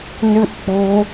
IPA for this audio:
n ʉ ʔ k͡p u

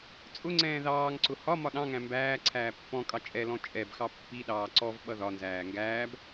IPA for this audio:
t͡sʼ ʊ ŋ͡ǀ ɛ̃ː ð ɑː ŋ ǀ ʊ h ɒ m ɒ ɗ ɑ̃ ŋ æ̃ m b æː ǀʰ æː pː ɔ̃ kʼ ɑ t͡ʃʼ ɛ l ɔ̃ t͡ʃʼ ɛ b x ɑ pː i ɗ ɑː ǀ ɔ v ɓ ʌ ð ɒ n z æː ŋ ɡ æː b

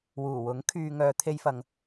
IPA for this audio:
w uː˨˩ w ʊ˨˥ ŋ kʰ yː˨ ŋ œː˨˧ t̪ʰ e˧ j f ɐ˨˧ ŋ

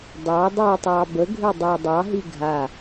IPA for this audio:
dˤ ɑ dˤ i tˤ ɑ b ə ɡʱ ø dˤ ɑ dˤ ɑ ɦ i ɡʱ a

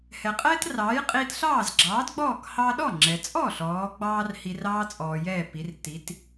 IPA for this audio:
h ɛ˩ qʼ ɛː˥ t r ɑː˩˥ j qʼ iː˧ t ɬ ɑː˥˩ z ɡ͡ǁ ɑː˩˥ d ɡ͡b ɔː˥˩ k h ɑ˧ ɗ ɔ˥˩ ŋ͡ǁ ɛ˩ t͡sʼ ɔ˥˩ ɬ ɔː˩˥ ɡ͡b ɑː˥ r h i˧ r ɑː˥ t͡sʼ ɔː˩ j ɛː˥˩ p i˩˥ r t i˩˥ t

